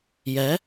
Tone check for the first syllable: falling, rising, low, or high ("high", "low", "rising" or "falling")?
rising